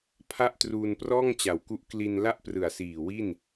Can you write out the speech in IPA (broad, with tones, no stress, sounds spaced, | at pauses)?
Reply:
pʰ a˥˩ ʔ t r uː˧ n p r ɔː˥˩ ŋ t͡ɕ a˩˦ w k u˦˥ ʔ k l i˧ n l a˥˩ ʔ p r ɯ˨˩ a̯ s iː˨˩ w i˥˩ n